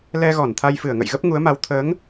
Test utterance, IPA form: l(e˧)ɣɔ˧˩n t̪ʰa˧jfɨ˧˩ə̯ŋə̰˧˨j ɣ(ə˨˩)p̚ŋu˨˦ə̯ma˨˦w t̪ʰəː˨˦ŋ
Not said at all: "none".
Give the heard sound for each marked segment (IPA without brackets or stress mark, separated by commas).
ɛ˧, ə˦˥